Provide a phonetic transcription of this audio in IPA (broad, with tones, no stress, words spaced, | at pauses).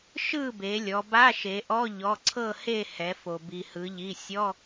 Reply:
ʃɯ˥˨be˩˧lʲɔ˩˧ba˧˥˧ ʃe˩˧ʔɔ˧˥˧ ʎɔ˩˧˩ǀʰɤ˥˨he˥˨ hɛ˩˧fo˩ bi˩hɯ˩˧ʎi˩˧˩ sʲɔ˧˥˧